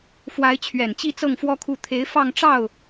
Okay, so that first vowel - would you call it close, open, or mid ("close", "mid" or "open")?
open